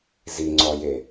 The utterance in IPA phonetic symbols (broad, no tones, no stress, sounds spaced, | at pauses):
z i ŋ͡ǀ ɔ j e